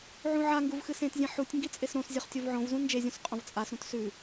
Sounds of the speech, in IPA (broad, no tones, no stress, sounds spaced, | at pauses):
ʕ ũ ʕ a ŋ ɡ u v x ɨ s ẽ t zʲ ẽ ħ u tʲ ŋ ɡ i t͡sʼ e s ɾ õ s zʲ ɵ χ tʲ o v ʕ õ v z ũ n d͡ʒ e zʲ ũ s qʼ õ v t͡sʼ a s ɾ ũ t s ʉ